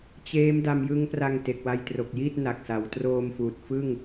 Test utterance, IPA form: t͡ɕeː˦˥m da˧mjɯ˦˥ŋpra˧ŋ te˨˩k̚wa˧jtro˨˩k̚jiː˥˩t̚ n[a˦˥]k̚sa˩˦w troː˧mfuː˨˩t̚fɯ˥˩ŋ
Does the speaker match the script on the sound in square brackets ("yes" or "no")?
no